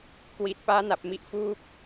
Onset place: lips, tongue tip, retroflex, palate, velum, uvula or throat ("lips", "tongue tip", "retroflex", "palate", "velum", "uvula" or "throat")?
velum